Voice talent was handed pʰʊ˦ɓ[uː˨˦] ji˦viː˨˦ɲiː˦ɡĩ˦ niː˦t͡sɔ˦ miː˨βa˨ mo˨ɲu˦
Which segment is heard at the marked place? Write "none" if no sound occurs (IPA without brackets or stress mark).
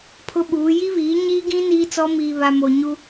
uː˨˦